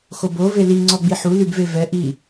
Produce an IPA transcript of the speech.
x o b o v e l i ŋ͡ǀ ɔ ɡ͡b i ħ u l y b v e v ɛ ʔ i

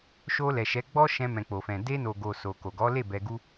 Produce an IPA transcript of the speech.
ʃ o˧ l ɛ˨ ʃ ɛ˨˦ ɡ͡b ɔ˦ ʃ ɛ̃˧ m ɛ̃˨ k͡p o˨ f ɛ̃˨ d e˧ n o˨ ɡ o˨ s o˨ k o˨ ɡ ɔ˨˦ l e˦˨ b ɛ˧ ɡ u˦

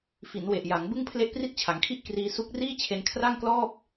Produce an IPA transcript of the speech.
f i˩˦ n w e˨˩ ʔ j a˩˦ ŋ b ɯ˥˩ ŋ pʰ l e˥˩ ʔ p r i˥˩ t̚ t͡ɕʰ a˩˦ ŋ kʰ i˥˩ ʔ k r iː˧ s u˦˥ k̚ r iː˥˩ t͡ɕʰ e˧ n kʰ r a˥˩ ŋ k l ɔː˥˩ p̚

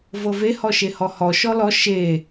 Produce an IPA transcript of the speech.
v ɤ v e h ɔ ʃ e h ɔ h ɔ ʃ ɔ l ɔ ʃ e

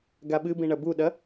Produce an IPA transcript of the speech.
ɡ a ɓ ɨ b ĩ ɳ ɐ b u ɗ ɐ

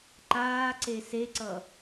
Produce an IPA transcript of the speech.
ǃ aː ǀ e s e ǀ ʌ

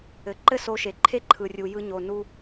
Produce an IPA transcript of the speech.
ɘ˨ ǃ ɘ˦ s o˧ ʃ e˨ ǃʰ e˦ ǃʰ ɯ˨ rʲ u˨ j ɯ˧ ɲ o˨ n u˧

